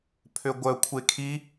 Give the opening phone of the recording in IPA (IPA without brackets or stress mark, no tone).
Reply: pʰ